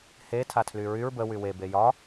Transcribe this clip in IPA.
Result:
h e tʰ a tʰ l y ɹ y ɹ b ə w y w e b e j ɒ

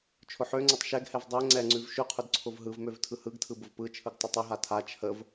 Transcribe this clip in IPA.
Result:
t͡ʃʰ ʊ ħ ø ŋ͡ǀ ə tˤ ʃ ɛ ɡ h ɛ v dˤ ɛ ŋ͡ǀ ɛ ŋ͡ǀ ʉ v ʃ ʉ qʰ ʊ d ǀʰ ʊ v ɦ ɯ v m ø v tʰ ɯ h ɯ ɡ tʰ ɯ b ʊ v p ɯ t͡ʃʰ ɯ ɡ tˤ ʊ tˤ ʊ ɦ a tʰ a t͡ʃʰ ə v

